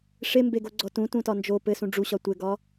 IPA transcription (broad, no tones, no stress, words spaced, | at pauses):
ʂembeɡoɡ͡ǀɔ tũtũtɒ nd͡ʒo pɘsũ ɖ͡ʐuɕɒ tʷɘɡɒ